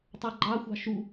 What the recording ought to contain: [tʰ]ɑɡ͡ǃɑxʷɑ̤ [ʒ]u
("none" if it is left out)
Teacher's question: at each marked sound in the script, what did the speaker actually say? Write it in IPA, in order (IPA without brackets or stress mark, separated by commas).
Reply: tˤ, ʃ